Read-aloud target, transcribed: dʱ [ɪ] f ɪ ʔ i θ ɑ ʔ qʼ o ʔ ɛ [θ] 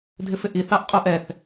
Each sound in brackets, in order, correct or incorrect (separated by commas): correct, correct